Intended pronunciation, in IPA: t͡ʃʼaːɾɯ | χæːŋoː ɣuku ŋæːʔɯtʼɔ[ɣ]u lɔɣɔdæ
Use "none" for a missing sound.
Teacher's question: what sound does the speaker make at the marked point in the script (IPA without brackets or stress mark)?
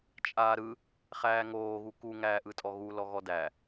ɣ